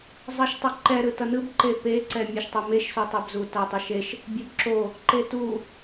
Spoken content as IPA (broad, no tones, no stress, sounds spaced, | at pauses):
zˤ ʌ ʃ tˤ o ǃ ɛ ɾ ɯ t ʌ n ɯ b ǃ e p e ǀ ɛ mʲ e ʃ tˤ o m e ʃ s o tˤ ɛ b z u t a tˤ o ʃ e ʃ | bʲ o b ǁ o | ǃ e t u